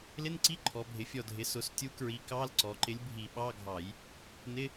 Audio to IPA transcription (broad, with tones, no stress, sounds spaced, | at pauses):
l ɪ˧˥˧ n ǀ i˧˥˧ ǃʰ ɔ˩˧ bʱ ɪ˩˧ fʲ ɔ˧˩ dʱ ɪ˩˧ s ʊ˩˧ s tʲ u˨˥ k ɹ i˨˥ k ɑ˧˥˧ l ǀ ɔ˩˧ ǃ ɪ˨˥ lʲ bʱ i˧˩˧ ɓ ɑ˧˥˧ ɡʱ ɑ˧˩˧ j | n ɪ˧˥˧